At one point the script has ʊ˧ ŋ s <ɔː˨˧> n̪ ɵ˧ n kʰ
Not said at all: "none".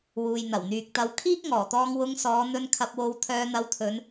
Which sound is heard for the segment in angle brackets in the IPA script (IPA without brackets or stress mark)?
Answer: ɔː˨˧